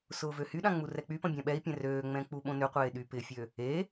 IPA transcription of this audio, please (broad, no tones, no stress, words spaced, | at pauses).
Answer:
sʊːvøhyɗã ŋ͡murɛk͡pypɐ̃ bʲãɓɛi̯pʲɛ̃ røːŋ͡mɛ̃ k͡puɓõnʏqʷeː ɗypɪfʲø | e